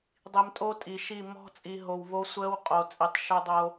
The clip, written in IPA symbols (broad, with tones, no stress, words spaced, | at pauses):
dˤi˨mtʼo˦tʼi˨ʃi˦˨ mɔ̤˦ t͡sʼi˨ɦo˨wβo˦ sʷəː˦wqʼo˨t͡sʼi˨tˤ ʃœ˦dˤo˦